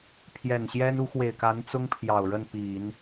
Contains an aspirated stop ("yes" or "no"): yes